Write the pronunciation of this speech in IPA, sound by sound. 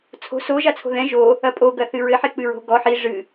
t͡sʰ o̤ s o ʒ a t͡sʰ o̤ ð ɛ̃ ʒ o | ɐ pʼ o ɡ ɐ θ ɨ ɹ ɘ ħ e k͡p ɨ ɹ o̤ ɡ ɔ ħ i ʐ ɨ

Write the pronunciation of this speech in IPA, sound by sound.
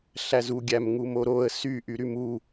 ɬ æ z u ɡʲ æ m ŋ u m o ɾ o ə̯ s y ʔ y ɾ y m u

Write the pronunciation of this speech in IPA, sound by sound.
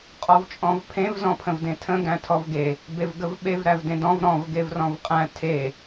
qʼ ɔ v t͡ʃʼ ɔ̃ v pʰ ẽ v z ɔ̃ pʰ ə̃ v d ẽ tʰ ə̃ ɡ æ̃ tʰ ɔ v ɡ e | b e v ɡ ə v ɓ e v ɾ æ v d ẽ d ɔ̃ v ɾ ɔ̃ v ɡ e v r ɔ̃ v qʼ æ̃ tʰ e

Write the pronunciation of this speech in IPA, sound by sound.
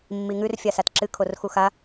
mː i ŋ ʉ r fʲ a s a t ǁ ɨ kʰ o r x u x a

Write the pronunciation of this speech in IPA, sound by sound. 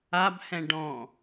a b h ɛ̃ ɖ ɔ̃

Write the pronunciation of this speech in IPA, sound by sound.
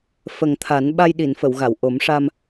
f ə˨˩ ŋ t̪ʰ a˨˩˦ n ɓ a˧ j ɗ i˨˩˨ n f ə˨˩˨ w ɣ a˨˩˨ w ʔ o˨˩˦ m ʂ a˧ m

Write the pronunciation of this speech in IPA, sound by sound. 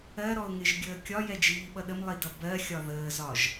ɜ ɾ ɔ ʊ̯ ŋ ɪ ʒ ɡʲ əː kʲ ɒ j ɛ d͡ʒ iː ɓ ʌ ɗ ə m lˠ i d ʌ b ɜ xʲ ɒ ð əː z ɒ ʒ

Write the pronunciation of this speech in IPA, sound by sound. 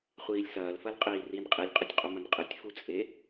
χʷ iː lʲ s ɐː l f ɐ l qʼ iː r i n qʼ i lʲ qʼ ɐ tʲ qʼ u m ɐ n qʼ ɨ tʲ f u t͡sʼ e

